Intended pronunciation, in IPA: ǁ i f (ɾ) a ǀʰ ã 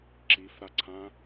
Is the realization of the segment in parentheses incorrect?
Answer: no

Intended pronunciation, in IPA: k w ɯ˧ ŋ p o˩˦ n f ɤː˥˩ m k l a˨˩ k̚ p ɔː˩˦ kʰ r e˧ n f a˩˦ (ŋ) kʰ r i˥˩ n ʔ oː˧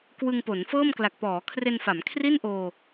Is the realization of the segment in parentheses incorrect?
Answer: yes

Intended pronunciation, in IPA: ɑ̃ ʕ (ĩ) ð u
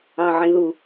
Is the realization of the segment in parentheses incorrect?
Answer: no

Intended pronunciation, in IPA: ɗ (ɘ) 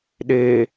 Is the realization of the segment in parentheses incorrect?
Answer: yes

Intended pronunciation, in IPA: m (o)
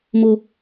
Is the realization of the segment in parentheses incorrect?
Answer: no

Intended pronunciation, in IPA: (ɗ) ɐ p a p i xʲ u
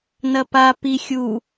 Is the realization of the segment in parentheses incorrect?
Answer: yes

